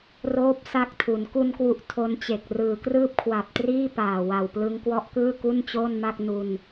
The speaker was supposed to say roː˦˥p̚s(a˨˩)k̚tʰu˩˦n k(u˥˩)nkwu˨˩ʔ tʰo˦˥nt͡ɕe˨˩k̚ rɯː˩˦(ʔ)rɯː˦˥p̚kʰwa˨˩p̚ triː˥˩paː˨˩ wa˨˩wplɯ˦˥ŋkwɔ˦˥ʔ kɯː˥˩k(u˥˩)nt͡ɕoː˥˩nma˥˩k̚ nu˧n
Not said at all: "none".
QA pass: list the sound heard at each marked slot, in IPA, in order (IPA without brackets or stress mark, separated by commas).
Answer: a˦˥, u˧, k, u˥˩